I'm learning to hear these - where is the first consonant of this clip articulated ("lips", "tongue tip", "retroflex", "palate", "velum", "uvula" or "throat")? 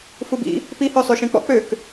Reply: lips